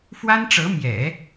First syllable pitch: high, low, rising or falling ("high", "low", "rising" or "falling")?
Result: high